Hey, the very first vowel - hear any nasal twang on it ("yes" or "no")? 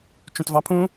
yes